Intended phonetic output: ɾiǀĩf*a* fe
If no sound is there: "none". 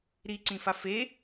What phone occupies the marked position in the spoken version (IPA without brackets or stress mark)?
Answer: a